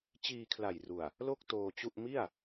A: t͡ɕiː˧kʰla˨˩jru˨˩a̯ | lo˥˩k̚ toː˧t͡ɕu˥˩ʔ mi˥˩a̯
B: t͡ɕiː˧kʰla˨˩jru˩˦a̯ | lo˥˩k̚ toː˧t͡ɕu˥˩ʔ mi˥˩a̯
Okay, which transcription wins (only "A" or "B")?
A